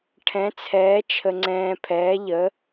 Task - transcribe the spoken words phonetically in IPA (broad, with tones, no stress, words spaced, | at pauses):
ʈʰɛ̃˨˥t͡sʰɛː˨˥ t͡ʃʰə˧ŋ͡ǀɛ̃ː˧pʰɛː˨˥ ʎə˨˥